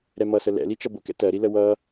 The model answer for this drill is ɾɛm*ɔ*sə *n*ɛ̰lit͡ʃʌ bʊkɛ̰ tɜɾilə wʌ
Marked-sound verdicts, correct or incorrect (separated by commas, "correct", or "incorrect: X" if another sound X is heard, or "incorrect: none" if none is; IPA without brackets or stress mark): incorrect: ʌ, incorrect: l